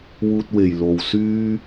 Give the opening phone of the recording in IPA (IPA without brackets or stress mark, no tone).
w